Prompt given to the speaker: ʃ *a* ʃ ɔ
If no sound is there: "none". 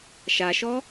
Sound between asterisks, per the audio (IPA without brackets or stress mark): a